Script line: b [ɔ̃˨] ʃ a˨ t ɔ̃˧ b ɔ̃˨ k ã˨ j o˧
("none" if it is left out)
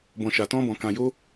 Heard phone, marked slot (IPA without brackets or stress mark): ɔ̃˨